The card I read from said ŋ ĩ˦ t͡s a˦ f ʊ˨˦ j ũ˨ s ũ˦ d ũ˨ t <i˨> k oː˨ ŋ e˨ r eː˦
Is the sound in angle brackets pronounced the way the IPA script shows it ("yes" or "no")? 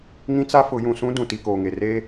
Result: yes